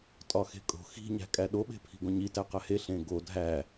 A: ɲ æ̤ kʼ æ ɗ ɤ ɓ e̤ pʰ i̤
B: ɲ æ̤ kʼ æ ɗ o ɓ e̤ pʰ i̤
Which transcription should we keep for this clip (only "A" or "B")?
B